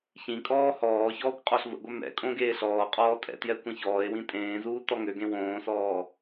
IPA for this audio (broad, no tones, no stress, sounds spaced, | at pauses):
ç ĩ kʼ ɔː h ɔː ç ɔː kʷ qʼ ɔ ɬ v ə̰ ɡʷ œ m ɛ̰ kʼ õ ɡ eː ɬ ɔː qʼ ɔː tʼ ɛ̰ t j ɛ kʷ ĩ ç ɔː e̯ w ĩ tʼ ẽː z uː t ɔ ŋ ø ɡ ẽ w õː s ɔː